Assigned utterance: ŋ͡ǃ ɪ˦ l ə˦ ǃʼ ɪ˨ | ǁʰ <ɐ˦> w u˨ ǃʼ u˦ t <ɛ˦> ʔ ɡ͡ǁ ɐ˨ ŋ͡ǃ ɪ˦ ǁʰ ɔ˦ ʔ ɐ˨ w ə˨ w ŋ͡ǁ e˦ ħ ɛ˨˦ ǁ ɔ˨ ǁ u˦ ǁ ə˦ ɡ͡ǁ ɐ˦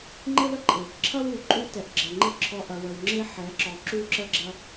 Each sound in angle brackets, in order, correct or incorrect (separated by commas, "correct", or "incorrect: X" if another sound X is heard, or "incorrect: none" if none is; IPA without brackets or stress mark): correct, incorrect: ɛ˨